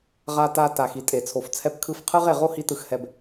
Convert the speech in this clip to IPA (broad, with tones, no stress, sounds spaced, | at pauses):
ʁ a˧ t a˧ t a˨ x i˨ tʼ e˨ t͡sʰ o˨ f t͡sʰ ɛ˧ p kʰ ɯ˧ f qʰ ɯ˦ ʁ e˨ ʁ o˦ h i˧ t ɯ˨ x h ɛ˨ b